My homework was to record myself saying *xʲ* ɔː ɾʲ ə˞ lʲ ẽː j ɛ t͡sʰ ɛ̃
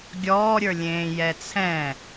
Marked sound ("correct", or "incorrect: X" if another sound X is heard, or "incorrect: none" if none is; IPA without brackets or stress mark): incorrect: ɡʲ